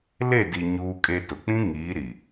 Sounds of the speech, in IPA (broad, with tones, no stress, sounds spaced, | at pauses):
l e˦˨ d i˨ ɲ uː˦ kʼ e˦ t ʊ˨ k͡p ĩ˦ ŋ iː˨˦ ɾ i˨